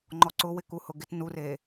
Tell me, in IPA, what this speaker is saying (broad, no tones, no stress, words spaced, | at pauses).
ŋ͡ǃɔǀʊ wɪkuhʊɡɪt nure